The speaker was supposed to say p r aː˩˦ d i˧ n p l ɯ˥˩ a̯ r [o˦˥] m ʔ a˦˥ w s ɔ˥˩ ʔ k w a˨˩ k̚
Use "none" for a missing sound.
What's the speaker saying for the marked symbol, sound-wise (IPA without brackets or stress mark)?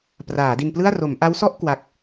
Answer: o˩˦